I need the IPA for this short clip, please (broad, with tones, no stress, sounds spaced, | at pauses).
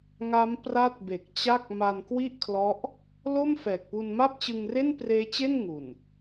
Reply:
ŋ a˦˥ m p r a˦˥ t̚ b e˨˩ k̚ t͡ɕ a˥˩ k̚ m a˧ n k w i˥˩ ʔ kʰ l ɔ˦˥ ʔ | l o˥˩ m f ɛː˨˩ k̚ p u˧ n m a˥˩ p̚ t͡ɕ ɯ˧ ŋ r e˥˩ n p r eː˦˥ t͡ɕ e˥˩ n ŋ u˨˩ n